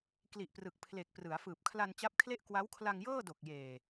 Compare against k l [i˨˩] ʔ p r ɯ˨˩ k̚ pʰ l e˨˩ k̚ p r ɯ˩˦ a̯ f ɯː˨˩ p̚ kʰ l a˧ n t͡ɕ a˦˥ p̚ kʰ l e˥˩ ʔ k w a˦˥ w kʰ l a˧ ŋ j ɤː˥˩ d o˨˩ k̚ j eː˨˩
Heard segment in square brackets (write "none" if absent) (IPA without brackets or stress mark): i˨˩